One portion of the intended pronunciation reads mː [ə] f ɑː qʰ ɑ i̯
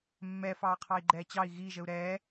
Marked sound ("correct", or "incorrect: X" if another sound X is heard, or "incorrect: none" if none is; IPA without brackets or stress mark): incorrect: ɛ